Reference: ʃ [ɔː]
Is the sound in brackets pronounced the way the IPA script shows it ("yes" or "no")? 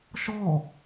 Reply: yes